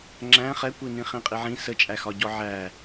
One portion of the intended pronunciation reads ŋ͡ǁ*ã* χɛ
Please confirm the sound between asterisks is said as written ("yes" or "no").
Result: no